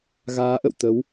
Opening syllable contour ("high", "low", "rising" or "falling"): rising